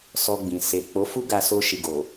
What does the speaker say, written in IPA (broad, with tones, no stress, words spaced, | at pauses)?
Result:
sɔ˧ɡ͡bĩ˨ se˨ k͡po˨˦fu˦ ɡa˧so˧ʃi˨ɡo˨